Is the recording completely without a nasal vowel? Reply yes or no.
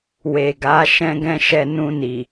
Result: no